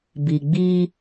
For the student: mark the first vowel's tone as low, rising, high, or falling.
low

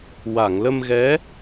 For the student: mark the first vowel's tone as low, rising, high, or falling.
low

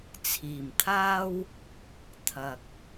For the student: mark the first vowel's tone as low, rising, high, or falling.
low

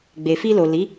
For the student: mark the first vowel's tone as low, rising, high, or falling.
low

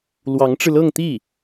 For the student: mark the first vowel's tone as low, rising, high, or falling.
rising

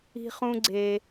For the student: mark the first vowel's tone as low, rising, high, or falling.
high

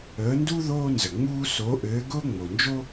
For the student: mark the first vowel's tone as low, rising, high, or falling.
rising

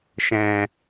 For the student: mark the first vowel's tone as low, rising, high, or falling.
low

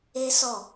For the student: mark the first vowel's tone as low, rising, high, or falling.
high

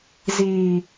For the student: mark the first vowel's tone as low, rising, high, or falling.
low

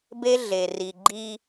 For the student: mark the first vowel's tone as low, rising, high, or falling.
high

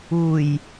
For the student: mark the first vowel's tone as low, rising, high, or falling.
low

